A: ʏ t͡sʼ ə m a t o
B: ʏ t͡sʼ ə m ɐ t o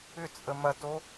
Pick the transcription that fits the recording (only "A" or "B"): B